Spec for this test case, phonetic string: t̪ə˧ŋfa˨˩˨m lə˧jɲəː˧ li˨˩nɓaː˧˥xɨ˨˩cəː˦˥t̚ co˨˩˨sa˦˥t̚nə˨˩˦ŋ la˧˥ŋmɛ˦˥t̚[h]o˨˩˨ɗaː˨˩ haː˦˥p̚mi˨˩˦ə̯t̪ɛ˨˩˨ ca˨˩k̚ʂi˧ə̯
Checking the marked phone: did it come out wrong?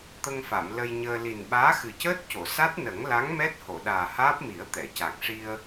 no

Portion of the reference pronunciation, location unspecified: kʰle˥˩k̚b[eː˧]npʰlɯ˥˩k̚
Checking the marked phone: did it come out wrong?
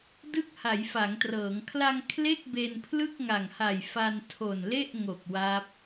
yes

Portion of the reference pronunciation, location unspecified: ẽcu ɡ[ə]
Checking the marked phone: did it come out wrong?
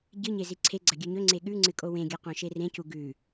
yes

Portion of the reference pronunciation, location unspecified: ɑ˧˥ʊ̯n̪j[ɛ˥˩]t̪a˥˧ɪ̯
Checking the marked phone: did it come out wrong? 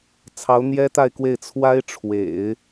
yes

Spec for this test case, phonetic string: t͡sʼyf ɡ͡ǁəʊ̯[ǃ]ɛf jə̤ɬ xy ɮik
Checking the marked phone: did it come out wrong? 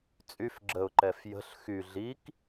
no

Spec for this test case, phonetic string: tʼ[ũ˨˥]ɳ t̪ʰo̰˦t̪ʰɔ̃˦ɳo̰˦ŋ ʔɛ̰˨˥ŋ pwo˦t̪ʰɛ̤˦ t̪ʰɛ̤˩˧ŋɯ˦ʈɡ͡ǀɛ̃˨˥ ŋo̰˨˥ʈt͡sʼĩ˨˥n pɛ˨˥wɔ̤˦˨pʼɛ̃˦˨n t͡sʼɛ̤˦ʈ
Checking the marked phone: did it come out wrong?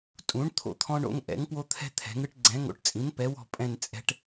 no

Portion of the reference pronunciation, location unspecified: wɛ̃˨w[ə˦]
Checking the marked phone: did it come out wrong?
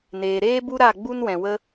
no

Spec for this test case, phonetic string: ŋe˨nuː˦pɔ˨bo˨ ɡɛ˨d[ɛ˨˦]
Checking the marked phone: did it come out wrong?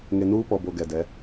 no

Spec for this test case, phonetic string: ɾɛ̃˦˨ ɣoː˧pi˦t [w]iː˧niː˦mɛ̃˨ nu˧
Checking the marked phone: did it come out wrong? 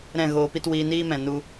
no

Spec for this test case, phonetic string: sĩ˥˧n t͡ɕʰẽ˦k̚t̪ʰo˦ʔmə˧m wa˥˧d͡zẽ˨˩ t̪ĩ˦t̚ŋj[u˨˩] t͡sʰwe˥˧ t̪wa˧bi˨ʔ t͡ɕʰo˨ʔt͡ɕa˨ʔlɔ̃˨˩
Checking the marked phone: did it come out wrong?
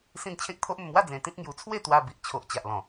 yes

